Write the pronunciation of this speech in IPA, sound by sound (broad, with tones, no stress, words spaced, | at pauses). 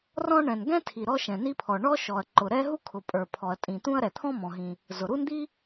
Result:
rɔ̃˥ ɳɛ̃˩nɡɛ̃˥tʰi˩ ɾɔ˥ʃɛ̃˩ni˥pʰɔ˩ ɳɔ˥ ʃɔ˩ɐ̯ǃʊ˩ ɾɛ˥ɦu˥kʰʊ˩ pʼə˞˩ pʰɔ˩ɐ̯tʼĩ˩t̪ũ˥ɐ̯ ɾɛ˩t̪ʰɔ̃˥ mɔ̃˩ɦĩ˩ | zʊ˩ɾu˥nd̪i˥